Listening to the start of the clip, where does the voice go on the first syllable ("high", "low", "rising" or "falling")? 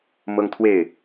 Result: high